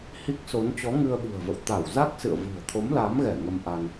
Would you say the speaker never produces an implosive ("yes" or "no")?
no